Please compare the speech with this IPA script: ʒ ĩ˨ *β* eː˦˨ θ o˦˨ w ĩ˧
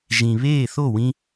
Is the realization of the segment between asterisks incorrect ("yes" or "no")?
no